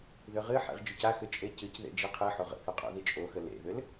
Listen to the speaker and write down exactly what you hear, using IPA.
ðʏʁɨħḛʁ d͡ʒʏcaxʏ t͡ʃʼecɨcðḛ d͡ʒeqʰɨħoʁ ə̰θʏ qʼo̰ðit͡ʃʼoxə lḛðʏl

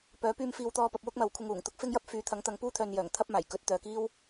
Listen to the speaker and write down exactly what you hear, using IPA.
pœː˨˥pyː˧m fiː˨wt̪ɔː˧ pɐ˧p̚wʊ˥k̚mɐ˨˧w kʷʰɪ˧ŋuː˨˩ŋt̪ʊ˥k̚ fɪ˥ŋjɐ˥p̚ fyː˨˧t̪ʰɐ˨˥ŋt̪ɐ˨˧ŋ puː˥t̪ʰœː˨njœː˨˩ŋ t̪ʰɐ˥p̚maː˨˩j kɵ˨˥t̚t̪œː˨kiː˥w

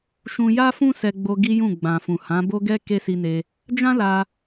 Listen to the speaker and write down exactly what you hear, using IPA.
ʃũ˧ja˦fũ˦ sɛ˧ɡ͡bo˧ ɡi˦jũ˦˨ɡ͡bã˨fũ˨ hã˨˦bo˦ɡɛ˦ ke˦si˧ne˧ | d͡ʒã˦la˧

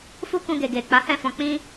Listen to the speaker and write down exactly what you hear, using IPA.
fu˦ kũ˧ ɡe˨ɡe˨k͡pa˨˦ hɛ̃˦˨fɔ̃˧k͡pĩ˦

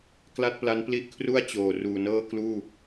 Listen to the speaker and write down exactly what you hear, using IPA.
kla˥˩t̚pla˦˥n pli˦˥ʔkʰru˥˩a̯ t͡ɕoː˨˩ ruː˨˩nɤː˥˩kluː˥˩

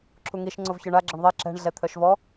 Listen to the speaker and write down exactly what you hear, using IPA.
ǁʰuŋiʃ ŋ͡ǀovçœɳa ɡ͡ǁəɳðˤe ǁɛ̤ɳ ɮɛt̪ʰœʃvɔ

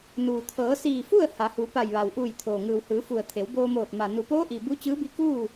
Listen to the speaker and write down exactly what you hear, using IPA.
nuː˩ t̪ʰɤː˩˧siː˧˩fu˥˨ə̯ ha˩˧hu˩˧ pa˧˩jʋa˩w ʔuː˧˩jt̪ʰoː˩ ŋɯː˩whɯː˩˧fu˩ə̯ t̪ʰe˩˧wboː˧moː˧˩t̚ ma˩ nu˩poː˧˥ʔi˩ bu˧˥t͡ɕɯː˧˥bi˧˥ kuː˥˨

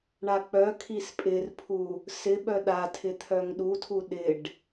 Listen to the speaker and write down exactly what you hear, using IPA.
ɳak͡pœkʰis pʼɪrpʰu | sɪ ɓœɗatʰɪ t̪ʰœŋɗutʰu ɗɪɖ

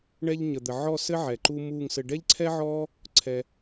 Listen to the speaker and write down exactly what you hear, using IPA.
ɳɛ˧ʎɲə˨d̪ə˨ ʕɔ˦˨sɘ˦ ʕɛ˨ǃu˦ muː˦˨ŋsɘ˧ ɖɛ˦ʎǀʰɛ˦ʕɔː˦ | ǀʰɛ˧

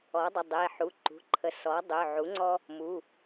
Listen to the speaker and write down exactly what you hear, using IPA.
ɔ˩˥dˤə˩˧˩dˤe˩˧˩ħu˩˧˩ ǃṳ˩˧˩ǃʰə˩˥ sɔ˩˥ dˤø˩˧˩ʕu˩˥ŋ͡ǀɔ˦ | mu˩˧˩

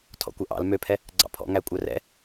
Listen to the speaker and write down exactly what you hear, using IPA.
tʰɔ̰kʷœʔɑ̰l møpʰɛ | ɡ͡ǀɑ̰pʰɔ̰ŋæ kʷʼœrɛ̰

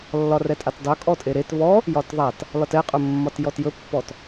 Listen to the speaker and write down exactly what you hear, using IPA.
lːɒrɛtʼatdˤɵ kʼɔtʼeɾet βɔ | jɒtðˤat | lɒtɛqʼɵ mːɒtjɔtjɵpːɔt

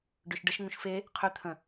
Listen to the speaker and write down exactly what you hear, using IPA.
ɖøʃɖəʃ ŋũʃfe | qʰʏ t̪ʰə̃

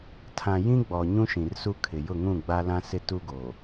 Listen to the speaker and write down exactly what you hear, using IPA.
tʰã˨ jĩ˦ɡ͡bɔ˨ ɲũ˦ʃĩ˨rsu˦ kʰɪ˨jʊ˦˨ŋũ˦˨ ɡ͡ba˦lã˦sɪ˦ tu˦ɡoː˨

